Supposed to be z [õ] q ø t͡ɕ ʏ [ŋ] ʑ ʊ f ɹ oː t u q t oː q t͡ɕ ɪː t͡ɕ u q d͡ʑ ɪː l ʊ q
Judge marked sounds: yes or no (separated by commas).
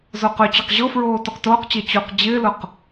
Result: no, no